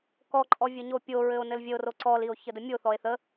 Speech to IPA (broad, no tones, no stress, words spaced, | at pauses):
kɔǃʼɔ vʲəɲopʲoɹɘo̯ nɘlvʲəo̯ro ǀɔlio̯ çədəmʲoθɔe̯ θə